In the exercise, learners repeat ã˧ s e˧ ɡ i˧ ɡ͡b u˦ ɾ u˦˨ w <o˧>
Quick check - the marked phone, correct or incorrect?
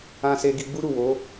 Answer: incorrect